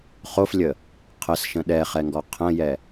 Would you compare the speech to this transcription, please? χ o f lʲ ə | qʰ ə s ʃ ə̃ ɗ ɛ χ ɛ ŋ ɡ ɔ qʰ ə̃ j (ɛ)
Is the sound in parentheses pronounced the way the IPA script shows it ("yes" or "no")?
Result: yes